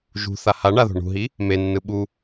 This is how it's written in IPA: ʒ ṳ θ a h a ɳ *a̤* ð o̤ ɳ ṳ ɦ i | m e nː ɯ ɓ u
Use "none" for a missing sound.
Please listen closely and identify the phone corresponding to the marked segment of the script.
a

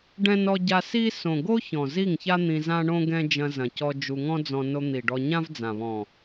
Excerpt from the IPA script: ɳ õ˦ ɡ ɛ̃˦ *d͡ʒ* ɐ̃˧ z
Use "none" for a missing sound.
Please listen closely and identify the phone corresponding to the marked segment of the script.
d͡ʒ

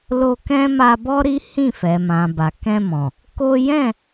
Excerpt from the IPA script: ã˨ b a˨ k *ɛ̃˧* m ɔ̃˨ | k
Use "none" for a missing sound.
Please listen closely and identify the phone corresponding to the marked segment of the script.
ɛ̃˧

